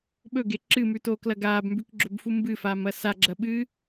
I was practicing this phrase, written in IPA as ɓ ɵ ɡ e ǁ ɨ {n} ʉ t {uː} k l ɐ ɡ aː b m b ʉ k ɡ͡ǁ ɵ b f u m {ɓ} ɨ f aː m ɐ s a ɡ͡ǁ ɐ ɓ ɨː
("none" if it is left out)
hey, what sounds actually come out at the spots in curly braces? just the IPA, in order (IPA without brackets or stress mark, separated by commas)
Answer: m, oː, b